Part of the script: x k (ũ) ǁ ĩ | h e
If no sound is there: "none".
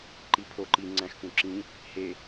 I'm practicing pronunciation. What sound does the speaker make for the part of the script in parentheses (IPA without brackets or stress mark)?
ũ